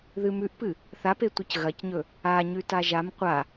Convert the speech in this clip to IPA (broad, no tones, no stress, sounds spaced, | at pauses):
ð ɨ m ʉ ʔ p ɨ | θ a p e tʷ ɨ c ɣ ɐ c ɲ ɵ | a ɲ ʉ t a ʒ a m qʷ a